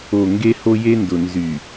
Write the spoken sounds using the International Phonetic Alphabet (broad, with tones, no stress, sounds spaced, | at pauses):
o˨ ŋ ɡ e˦ h o˦ j e˦ n d ʊ˨ n z y˨